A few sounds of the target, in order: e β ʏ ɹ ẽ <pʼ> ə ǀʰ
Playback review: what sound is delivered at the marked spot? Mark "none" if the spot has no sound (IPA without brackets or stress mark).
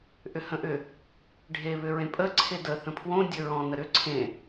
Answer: pʼ